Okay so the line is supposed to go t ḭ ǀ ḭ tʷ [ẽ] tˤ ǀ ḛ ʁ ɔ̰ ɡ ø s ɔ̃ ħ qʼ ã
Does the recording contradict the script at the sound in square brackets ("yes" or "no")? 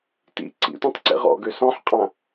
no